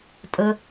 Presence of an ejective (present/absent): present